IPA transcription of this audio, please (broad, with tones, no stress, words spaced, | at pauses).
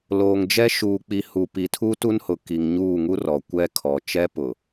loː˨ŋd͡ʒɛ˦ ʃuː˨k͡pi˨hu˨ pi˨tʰu˦tu˦nhʊ˨ ki˨ŋɲuː˦˨ŋu˦ rɔ˨kʷɛ˦ kʰɔ˨t͡ʃɛ˦pʊ˨